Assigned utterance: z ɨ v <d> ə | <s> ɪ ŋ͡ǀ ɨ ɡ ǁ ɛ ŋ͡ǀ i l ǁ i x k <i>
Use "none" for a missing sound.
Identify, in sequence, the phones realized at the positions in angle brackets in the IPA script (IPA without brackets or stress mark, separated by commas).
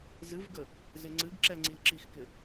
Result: ɡ, z, ɪ